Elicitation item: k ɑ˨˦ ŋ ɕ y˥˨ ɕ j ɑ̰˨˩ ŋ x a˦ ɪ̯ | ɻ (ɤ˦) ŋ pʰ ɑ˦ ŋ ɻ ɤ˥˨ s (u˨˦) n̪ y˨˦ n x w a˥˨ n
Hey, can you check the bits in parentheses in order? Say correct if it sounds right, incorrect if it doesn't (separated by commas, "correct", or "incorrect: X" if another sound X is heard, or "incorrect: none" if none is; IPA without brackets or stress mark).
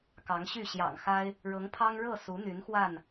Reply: incorrect: ɤ˨˦, correct